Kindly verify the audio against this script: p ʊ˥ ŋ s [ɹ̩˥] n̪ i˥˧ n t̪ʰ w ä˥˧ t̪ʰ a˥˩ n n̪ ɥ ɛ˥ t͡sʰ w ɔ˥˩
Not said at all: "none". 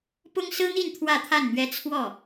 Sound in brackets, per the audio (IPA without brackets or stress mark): ɹ̩˥